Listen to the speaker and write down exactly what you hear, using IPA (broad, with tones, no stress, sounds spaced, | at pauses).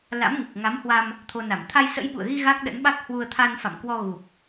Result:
l a̰˧˥ m ŋ ɨ˨˩ k̚ ŋ a˨˦ m h w a˧ m | t̪ʰ o˧ n a˧˩ m t̪ʰ a˧ j s ə̰˧˥ j ɓ ṵ˧˨ ə̯ ɣ i˧ ɣ a˦˥ k̚ ɗ ə̰˧˥ n ɓ a˦˥ k̚ h w u˧ ə̯ t̪ʰ a˧ n f a̰˧˨ m k w ɔ˧ ɣ u˨˩ p̚